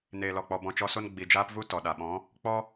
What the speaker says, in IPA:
n eː˨ l ɔ˨ k͡p ɔ˨ b ɔ̃˧ t͡ʃ ɔ˧ s o˦ n ɡ͡b i˨ d͡ʒ aː˦ p v u˦ t ɔ˨ ɗ a˨ ɓ ɔ̃˨˦ | k͡p ɔ˦

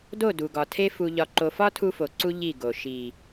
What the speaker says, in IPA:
d o˦˨ d u˨ ɡ ɒ˨ tʰ e˦ f u˨ ʎ ɒ˨ ǃ o˨ f ɒ˦ tʰ u˦ f o˨ ǀ u˦ ʎ i˦˨ ɡ o˨ ʃ i˨

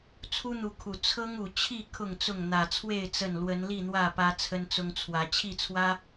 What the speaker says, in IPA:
t͡sʰ u˦ n̪ u˨˦ kʰ u˨˩ t͡sʰ ɤ˦ ŋ u˨˩ t͡ɕʰ i˥˨ kʰ ʊ˥˨ ŋ t͡s ʊ˥˨ ŋ n̪ ä˨˩ t͡sʰ w e˥˨ ɪ̯ t͡s ə˥˨ n l w ə˨˦ n l i˥˨ n̪ w ä˥˨ p ä˦ t͡sʰ ə˦ n t͡s ʊ˦ ŋ t͡sʰ w ä˨˦ t͡ɕʰ i˥˨ t͡sʰ w ä˦

